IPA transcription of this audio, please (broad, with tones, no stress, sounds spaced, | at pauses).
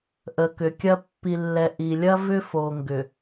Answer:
ʔ ə˨ k ʏ˨ kʲ ɐ˦ pː i˨ lː ɛ˨ ʔ i˨ lʲ ɐ˦ v ʏ˦ f o˨ ŋ ɡ ʏ˨